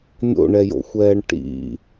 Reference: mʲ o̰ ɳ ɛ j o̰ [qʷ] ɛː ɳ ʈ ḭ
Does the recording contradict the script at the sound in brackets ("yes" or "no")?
yes